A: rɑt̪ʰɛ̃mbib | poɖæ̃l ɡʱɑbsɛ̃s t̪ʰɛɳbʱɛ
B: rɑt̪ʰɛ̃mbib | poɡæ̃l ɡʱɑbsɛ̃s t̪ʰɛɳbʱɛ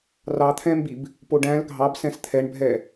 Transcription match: A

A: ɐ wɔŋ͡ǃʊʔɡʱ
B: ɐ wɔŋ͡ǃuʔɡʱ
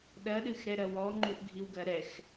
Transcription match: B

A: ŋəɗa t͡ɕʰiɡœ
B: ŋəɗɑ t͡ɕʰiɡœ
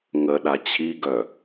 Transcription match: A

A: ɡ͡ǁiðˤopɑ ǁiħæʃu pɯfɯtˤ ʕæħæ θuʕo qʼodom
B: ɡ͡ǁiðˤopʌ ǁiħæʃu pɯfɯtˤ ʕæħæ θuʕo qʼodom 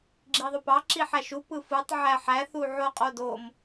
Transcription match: A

